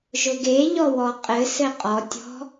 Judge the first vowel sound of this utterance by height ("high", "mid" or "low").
high